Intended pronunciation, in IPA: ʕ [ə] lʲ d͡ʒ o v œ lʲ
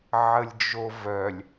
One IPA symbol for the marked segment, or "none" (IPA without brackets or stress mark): ə